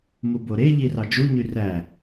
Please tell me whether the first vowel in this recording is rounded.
yes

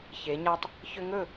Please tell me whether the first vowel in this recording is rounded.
no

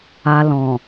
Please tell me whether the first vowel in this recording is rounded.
no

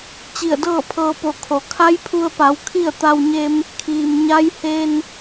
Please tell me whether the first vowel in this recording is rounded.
no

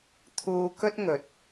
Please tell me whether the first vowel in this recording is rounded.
yes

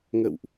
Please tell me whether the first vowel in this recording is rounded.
no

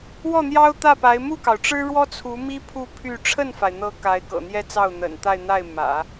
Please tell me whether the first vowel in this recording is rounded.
yes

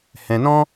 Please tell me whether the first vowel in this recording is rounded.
no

